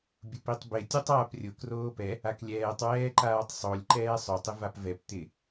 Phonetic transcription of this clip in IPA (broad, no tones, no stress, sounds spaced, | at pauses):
bʲ ʊ p i tˤ b ɪ tʲ o tˤ aː p rʲ ʊ k r oː p ɛ | a k lʲ ɛː tˤ w ɛː ǃ aː tˤ sˤ o lʲ ǃ ɛː sˤ ʊ tˤ ɪ v a p v ɛ p t̪ ɪ